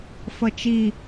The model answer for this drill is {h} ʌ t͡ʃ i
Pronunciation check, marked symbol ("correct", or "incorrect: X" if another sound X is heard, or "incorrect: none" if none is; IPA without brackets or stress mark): incorrect: f